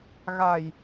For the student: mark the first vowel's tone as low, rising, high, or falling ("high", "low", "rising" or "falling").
low